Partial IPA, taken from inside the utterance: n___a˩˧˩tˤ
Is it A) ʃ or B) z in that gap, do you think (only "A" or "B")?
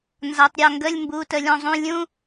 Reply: B